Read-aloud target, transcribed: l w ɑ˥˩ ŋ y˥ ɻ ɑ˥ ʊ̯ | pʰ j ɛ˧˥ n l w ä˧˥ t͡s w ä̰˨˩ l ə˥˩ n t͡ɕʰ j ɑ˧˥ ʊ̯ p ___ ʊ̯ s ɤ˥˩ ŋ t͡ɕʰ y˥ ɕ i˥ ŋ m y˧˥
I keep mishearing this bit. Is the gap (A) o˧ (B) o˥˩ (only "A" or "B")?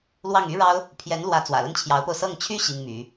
A